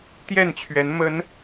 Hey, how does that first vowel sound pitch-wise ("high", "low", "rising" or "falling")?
falling